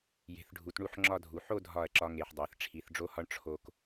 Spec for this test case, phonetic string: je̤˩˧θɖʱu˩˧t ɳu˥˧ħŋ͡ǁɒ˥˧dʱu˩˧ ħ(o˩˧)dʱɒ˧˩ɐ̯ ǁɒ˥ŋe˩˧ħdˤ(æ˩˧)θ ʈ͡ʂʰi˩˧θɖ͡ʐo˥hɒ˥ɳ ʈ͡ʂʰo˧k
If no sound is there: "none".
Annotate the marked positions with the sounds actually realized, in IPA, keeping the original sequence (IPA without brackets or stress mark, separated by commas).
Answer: o˥˧, æ˩˧